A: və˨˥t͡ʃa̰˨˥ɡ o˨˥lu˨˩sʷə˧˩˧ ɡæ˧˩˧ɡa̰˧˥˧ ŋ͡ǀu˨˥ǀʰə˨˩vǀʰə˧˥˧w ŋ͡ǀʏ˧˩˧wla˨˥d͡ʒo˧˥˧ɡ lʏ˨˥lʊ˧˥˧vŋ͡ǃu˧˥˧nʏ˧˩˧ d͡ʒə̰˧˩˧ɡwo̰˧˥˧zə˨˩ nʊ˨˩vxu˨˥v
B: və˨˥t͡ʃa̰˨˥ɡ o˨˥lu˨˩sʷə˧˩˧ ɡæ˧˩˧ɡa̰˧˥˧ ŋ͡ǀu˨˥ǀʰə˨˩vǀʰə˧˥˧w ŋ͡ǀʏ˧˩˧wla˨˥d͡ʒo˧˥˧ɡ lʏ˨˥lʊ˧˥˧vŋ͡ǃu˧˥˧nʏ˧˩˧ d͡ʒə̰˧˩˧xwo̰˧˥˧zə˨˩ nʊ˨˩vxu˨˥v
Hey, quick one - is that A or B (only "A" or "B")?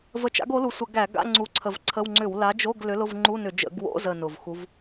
A